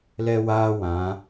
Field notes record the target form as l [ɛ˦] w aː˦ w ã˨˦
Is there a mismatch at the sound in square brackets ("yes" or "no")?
no